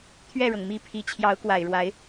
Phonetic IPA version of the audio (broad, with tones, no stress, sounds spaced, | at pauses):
t̪ʰ ɥ ɛ˥˩ ɻ ɤ˩ ŋ m i˧˥ pʰ i˨˩ t͡ɕʰ j ɑ˧˥ ʊ̯ k w a˨˩ ɪ̯ ɻ w a˧˥ ɪ̯